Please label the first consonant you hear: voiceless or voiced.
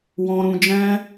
voiced